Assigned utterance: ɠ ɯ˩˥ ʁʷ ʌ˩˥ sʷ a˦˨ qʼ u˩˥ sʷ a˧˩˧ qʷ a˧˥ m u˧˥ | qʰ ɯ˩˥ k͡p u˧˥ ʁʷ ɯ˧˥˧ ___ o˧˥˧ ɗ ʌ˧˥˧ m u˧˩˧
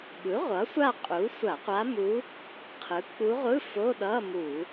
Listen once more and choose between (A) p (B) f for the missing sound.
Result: B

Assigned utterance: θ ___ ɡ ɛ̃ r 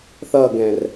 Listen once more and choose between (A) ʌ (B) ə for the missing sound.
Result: A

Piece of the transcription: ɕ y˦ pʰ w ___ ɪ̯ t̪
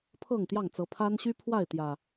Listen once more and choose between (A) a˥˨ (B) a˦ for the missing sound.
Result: A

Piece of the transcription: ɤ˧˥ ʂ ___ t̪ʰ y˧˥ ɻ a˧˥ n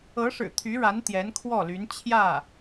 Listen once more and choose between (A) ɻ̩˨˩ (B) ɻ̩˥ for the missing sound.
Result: A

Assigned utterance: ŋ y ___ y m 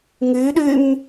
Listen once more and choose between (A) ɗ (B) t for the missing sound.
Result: A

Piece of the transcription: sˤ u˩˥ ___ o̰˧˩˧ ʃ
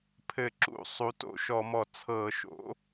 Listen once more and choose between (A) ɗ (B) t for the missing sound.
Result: B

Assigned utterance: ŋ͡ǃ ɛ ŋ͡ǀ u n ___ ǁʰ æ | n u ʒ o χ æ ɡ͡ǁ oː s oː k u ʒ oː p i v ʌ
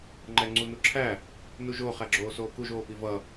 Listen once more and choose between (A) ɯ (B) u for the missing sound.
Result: B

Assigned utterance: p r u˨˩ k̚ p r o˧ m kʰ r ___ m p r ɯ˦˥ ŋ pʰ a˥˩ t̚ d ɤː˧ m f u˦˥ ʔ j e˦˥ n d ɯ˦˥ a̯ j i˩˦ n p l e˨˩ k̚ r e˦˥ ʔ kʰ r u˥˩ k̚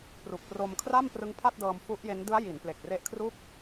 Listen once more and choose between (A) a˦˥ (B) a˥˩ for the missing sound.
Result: B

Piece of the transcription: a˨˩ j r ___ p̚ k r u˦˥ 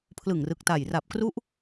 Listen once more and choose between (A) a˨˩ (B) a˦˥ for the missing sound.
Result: A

